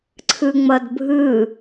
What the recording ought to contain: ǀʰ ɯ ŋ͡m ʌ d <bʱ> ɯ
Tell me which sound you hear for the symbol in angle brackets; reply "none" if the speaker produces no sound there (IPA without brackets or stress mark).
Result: bʱ